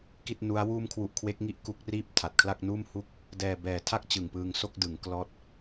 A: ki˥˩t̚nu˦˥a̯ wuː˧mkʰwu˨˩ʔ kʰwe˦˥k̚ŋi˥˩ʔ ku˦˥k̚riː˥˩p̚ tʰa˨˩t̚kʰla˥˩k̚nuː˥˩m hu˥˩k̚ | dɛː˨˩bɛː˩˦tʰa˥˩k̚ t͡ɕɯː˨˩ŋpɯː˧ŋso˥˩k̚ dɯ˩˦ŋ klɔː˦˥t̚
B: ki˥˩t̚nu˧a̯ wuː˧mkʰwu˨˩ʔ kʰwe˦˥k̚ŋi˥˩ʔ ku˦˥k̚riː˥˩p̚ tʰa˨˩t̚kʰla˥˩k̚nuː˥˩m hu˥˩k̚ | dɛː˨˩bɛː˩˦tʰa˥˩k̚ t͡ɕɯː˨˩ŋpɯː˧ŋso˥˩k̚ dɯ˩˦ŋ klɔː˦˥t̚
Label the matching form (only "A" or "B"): A